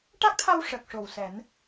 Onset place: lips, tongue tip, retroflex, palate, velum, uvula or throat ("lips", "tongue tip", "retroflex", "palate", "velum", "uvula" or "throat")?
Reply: retroflex